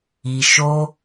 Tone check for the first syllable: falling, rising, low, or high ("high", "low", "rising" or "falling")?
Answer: low